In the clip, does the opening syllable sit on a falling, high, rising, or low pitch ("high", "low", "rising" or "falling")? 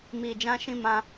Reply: low